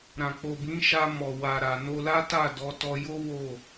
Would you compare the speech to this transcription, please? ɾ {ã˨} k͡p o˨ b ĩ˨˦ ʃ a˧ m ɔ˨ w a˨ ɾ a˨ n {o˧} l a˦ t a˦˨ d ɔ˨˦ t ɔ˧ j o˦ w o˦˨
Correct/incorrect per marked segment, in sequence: correct, correct

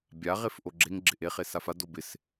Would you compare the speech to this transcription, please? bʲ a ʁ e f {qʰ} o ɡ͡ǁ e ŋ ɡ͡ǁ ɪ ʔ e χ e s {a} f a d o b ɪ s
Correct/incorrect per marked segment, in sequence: incorrect: ʔ, correct

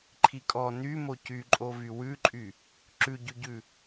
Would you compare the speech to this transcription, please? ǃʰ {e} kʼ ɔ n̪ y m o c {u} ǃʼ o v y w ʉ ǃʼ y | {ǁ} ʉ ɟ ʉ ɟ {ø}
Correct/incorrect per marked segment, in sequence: incorrect: i, incorrect: y, correct, incorrect: ʉ

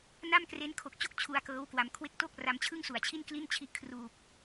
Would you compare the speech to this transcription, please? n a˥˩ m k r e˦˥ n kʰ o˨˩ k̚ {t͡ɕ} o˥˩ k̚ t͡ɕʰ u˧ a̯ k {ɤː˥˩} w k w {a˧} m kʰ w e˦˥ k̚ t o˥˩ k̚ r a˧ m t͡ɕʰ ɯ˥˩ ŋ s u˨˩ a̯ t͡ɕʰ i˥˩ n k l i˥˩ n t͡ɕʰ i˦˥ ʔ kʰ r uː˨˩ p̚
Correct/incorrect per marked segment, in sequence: correct, incorrect: ɤː˦˥, incorrect: a˩˦

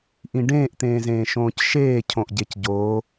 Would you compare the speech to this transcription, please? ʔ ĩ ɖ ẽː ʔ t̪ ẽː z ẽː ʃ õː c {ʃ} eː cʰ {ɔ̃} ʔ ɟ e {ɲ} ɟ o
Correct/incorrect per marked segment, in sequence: correct, incorrect: õ, incorrect: c

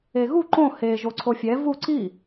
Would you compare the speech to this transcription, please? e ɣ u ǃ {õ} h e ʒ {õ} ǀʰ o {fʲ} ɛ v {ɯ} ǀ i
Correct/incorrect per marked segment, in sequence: correct, incorrect: o, correct, incorrect: u

